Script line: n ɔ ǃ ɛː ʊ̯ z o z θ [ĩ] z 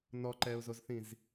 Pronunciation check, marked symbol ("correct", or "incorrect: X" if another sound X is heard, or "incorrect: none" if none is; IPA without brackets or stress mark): correct